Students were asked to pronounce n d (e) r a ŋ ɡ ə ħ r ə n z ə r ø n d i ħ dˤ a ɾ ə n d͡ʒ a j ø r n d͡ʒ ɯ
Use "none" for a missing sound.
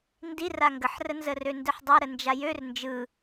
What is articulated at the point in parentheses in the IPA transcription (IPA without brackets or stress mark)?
i